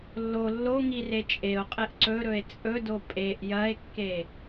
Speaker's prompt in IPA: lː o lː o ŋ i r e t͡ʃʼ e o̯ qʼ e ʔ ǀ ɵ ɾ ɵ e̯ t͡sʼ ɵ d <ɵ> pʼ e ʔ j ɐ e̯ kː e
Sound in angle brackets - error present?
yes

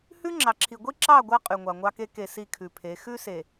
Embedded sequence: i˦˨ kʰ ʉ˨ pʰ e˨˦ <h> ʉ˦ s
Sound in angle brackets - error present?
yes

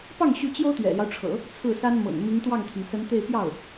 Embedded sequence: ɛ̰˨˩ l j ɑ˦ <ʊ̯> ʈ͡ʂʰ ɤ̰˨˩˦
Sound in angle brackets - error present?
no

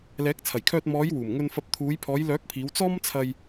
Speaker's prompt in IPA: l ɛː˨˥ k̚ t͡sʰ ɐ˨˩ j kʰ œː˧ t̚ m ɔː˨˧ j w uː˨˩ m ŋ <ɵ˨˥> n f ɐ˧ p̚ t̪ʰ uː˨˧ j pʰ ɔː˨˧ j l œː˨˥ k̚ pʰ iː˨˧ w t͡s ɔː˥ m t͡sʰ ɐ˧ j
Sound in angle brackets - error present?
yes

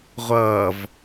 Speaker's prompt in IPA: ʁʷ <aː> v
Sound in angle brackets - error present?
yes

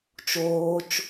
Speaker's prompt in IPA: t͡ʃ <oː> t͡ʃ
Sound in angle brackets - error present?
no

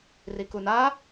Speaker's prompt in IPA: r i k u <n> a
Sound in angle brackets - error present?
no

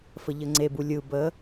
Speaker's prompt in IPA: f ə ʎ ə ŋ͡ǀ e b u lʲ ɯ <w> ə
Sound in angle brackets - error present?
yes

